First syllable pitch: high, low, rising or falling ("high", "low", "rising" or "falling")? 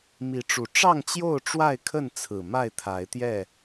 rising